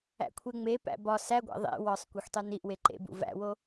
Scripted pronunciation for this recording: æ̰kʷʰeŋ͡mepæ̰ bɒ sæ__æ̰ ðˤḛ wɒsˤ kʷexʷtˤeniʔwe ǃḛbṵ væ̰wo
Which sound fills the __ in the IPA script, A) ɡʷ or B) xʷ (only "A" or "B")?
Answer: A